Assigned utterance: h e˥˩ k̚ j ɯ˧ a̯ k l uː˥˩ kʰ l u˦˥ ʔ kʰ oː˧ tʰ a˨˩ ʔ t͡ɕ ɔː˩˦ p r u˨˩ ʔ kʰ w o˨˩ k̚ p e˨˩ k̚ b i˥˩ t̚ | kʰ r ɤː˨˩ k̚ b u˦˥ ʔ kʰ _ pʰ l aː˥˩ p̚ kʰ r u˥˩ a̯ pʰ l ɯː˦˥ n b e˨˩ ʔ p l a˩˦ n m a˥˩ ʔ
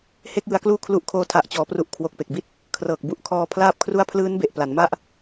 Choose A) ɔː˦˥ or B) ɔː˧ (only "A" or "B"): B